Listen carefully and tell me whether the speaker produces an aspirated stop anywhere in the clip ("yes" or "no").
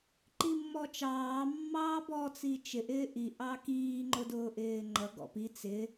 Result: no